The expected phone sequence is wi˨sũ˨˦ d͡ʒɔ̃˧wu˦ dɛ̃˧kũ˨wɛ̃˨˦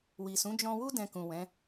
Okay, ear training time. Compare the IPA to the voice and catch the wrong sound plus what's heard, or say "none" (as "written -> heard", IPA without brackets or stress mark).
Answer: none